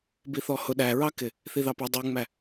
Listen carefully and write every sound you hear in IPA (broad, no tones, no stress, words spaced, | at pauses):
biθɔhʊ ɗæɹɑkɪ | θiðɑpʌ dˤuŋ͡mæ